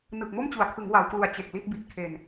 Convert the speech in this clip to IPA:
nɯ˨˩k̚mo˥˩mt͡ɕu˩˦a̯kʰɯ˩˦ŋ wa˩˦wklu˨˩a̯ t͡ɕe˨˩k̚li˥˩t̚ bi˨˩t̚kʰe˨˩n

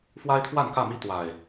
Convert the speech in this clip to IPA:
fwa˦ɪ̯t̪ʰwa˥˨nkä˥˨mi˦ t̪wa˨˩ɪ̯

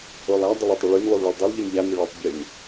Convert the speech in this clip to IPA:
olˠa dˤəlˠətˤə ɭyn lˠulˠɭulˠdˤylˠ ʎynʎanə ɭotˤ bʲən

